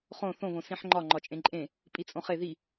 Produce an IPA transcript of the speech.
χ õ θ õ β õ s ĩ ħ ŋ͡ǃ ɒ ŋ͡ǃ ɒ t͡ʃʼ ẽ ǃʼ ẽ | pʼ i t͡sʼ õ χ e ð i

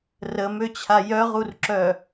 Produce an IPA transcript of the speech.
r ə m ø t͡ɕʰ a j œ ʁ u r ǁ œ

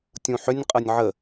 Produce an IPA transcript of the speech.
tʲ ũ ħ ʏ nʲ qʼ ɤ nʲ ʕ ə

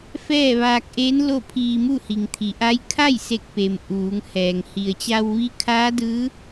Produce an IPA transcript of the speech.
f ɛː˥˨ ʋ aː˧ k̚ ʔ eː˧˥ n l o˥˨ pʰ iː˧ m u˥˨ h i˩ ŋ t̪ʰ i˩ ʔ a˧˥ j kʰ a˥˨ j s e˧˩ k̚ p e˩ m ʔ uː˩˧ ŋ h ɛː˩ ŋ h i˩ ə̯ t͡ɕ a˧ w ʋ i˧˥ kʰ aː˧˥ d ɯː˧˥

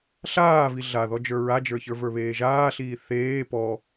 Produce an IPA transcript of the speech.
ɬ aː v i ɮ a ð ɔ d͡ʒ ə˞ ɹ a d͡ʒ ə˞ ç ə˞ v ə˞ β eː ʒ aː ɬ iː θ eː p ɔ

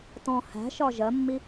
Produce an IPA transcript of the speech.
t ɔ̃ h æ̤ ʃ ɒ ʒ ɜ mː i

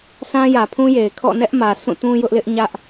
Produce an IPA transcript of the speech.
s ã˦ j ä˨ pʰ ũ˦ j e˨ ɪ̯ kʰ ɔ̰˦˨ n ɛ˦ ʔ m ä˨ s ũ˦˨ t ũ˦ j ʊ˦ ʔ l ɪ˦ ʔ ɲ ä˦ ʔ

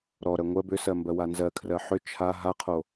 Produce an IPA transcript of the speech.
ɾ ɔ ɾ ɜ ŋʷ ɜ b ʏ s ɜ m b ɜ w a n z ɜ kʰ r ɜ ħ ʏ t͡ʃʰ a ɦ a qʰ o

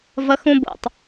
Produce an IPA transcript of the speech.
v ʌ x ũ b o̰ tˤ

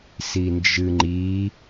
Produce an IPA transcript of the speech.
s i n d͡ʒ ɨ ŋ͡ǃ i

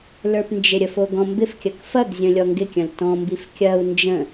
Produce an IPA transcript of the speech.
l ə˞ p n d͡ʒ ɪ ɾʲ ə f o ɡ ɔ̃ m b ɪ f kʲ ɐ k f ɐ ɡ zʲ ə̃ lʲ ɔ ŋ ɡ ɪ kʲ ɐ̃ l t ɔ̃ m b i f kʲ ɐ u̯ n d͡ʒ ə̃

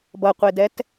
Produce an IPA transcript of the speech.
b ʌ qʷ e d ɛ t

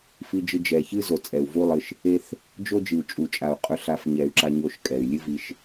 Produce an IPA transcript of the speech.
f i˧ d͡ʒ ɨ˧ d͡ʒ ɛ˨ ç ɨ˦ z o˨ t͡sʼ ɛ˨ u̯ v u˦ lˠ ɨ˧ ʃ | e˦ θ | d͡ʒ o˦ d͡ʒ ɨ˨ u̯ t͡ʃʼ u˨ t͡ʃʼ a˨ u̯ qʼ ɵ˧ ɬ a˧ f ɲ ɛ˨ y̯ ǁ a˧ ɲ o˧ ʃ kʼ ɛ˨ y̯ lʲ ɨ˦ v i˧ ʃ

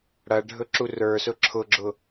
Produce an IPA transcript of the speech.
ɽ ɐ ɖʱ ɵ ǁ u r ə˞ s ʊ ǁʰ ʊ ɡ͡ǁ ʊ

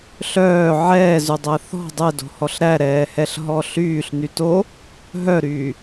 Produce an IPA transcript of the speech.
ɬ œː ʕ ɛː z y dˤ æ θ ɔ̤ dˤ ɛ d o̤ h ɔ ɬ ɾ æ ɾ ɛː h ɛ ɬ ɦ ɔ ɬ yː ɬ n y t o | ɦ œ ɾ yː

